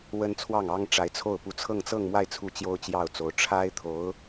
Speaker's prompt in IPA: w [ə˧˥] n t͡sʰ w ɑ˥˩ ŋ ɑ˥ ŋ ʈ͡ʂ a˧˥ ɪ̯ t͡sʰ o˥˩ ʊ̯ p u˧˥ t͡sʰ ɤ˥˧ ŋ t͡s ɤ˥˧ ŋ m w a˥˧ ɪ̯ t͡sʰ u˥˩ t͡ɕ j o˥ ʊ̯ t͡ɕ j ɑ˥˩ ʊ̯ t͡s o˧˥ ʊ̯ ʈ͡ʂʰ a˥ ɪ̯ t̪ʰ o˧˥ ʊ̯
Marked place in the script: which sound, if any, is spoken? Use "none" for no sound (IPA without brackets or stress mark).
ə˥